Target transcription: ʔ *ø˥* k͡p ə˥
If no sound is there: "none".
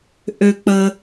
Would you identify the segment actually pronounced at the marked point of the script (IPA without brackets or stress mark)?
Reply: ø˥